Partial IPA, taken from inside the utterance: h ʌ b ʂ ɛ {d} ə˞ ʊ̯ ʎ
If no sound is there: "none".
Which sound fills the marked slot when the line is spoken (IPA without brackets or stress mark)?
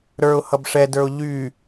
d